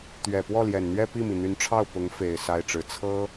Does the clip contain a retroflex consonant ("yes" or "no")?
yes